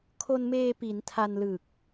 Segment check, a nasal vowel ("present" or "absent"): absent